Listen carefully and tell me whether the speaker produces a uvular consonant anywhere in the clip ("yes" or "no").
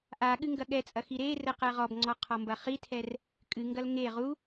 yes